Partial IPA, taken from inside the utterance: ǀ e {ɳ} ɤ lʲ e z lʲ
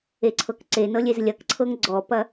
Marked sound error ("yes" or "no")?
yes